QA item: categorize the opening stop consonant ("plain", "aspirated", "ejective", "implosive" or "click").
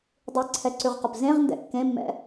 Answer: plain